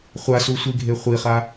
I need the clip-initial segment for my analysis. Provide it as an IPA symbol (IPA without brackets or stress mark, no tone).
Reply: χʷ